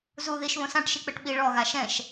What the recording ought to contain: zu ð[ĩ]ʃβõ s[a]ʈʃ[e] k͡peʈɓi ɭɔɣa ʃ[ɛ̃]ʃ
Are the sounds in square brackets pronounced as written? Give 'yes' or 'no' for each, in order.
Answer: no, no, no, yes

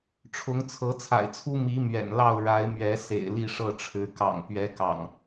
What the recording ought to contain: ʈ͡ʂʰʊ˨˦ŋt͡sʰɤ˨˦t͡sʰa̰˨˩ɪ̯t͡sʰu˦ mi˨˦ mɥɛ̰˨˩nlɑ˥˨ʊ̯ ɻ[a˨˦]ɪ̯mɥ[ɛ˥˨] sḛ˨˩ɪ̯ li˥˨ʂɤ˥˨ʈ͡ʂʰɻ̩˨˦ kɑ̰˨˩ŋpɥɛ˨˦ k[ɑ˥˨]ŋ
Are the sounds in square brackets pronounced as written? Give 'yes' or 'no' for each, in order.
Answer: yes, no, no

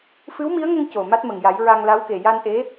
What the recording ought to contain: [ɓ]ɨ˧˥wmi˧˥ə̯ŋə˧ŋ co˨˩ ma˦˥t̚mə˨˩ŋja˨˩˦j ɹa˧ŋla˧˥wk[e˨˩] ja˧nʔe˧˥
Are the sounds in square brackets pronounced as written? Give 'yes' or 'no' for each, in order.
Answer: no, yes

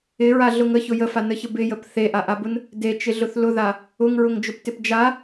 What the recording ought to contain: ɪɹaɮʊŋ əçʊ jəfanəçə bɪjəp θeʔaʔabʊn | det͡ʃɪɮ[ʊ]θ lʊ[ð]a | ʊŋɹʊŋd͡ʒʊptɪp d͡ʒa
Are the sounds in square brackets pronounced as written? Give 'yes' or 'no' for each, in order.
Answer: yes, yes

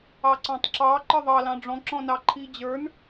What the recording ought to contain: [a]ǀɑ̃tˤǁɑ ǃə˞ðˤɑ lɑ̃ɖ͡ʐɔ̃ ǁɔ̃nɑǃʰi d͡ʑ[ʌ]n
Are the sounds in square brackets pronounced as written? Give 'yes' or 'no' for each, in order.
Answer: no, no

